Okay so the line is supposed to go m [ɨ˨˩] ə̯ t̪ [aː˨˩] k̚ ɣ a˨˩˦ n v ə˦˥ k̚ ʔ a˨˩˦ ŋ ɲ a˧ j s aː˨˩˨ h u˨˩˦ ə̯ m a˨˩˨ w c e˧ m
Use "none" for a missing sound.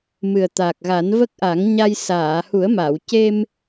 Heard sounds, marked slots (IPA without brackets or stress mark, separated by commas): ɨ˨˩, aː˨˩